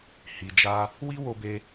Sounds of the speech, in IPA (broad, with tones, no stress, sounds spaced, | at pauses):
h i˨ d͡ʒ a˧ | w i˦ w o˧ b e˧